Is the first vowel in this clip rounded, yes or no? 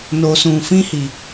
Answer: yes